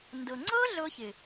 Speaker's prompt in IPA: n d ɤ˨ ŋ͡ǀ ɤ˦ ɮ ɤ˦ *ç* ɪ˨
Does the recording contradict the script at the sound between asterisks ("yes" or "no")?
no